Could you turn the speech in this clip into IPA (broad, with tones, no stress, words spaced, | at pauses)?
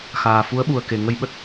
xaː˨˩fu˨˦ə̯ɓu˨˩ə̯ke˨˩ ŋə˧jɓə˦˥t̚